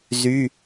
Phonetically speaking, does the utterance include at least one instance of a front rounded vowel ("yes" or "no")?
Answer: yes